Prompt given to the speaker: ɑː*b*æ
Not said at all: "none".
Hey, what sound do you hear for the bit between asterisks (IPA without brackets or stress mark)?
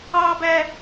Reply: b